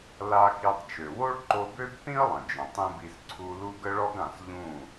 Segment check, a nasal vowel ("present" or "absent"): present